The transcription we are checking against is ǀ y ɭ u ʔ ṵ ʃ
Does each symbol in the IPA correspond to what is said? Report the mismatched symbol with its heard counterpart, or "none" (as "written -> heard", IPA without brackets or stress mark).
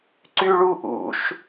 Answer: none